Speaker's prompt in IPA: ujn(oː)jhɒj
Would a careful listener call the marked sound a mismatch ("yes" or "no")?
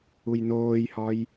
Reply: no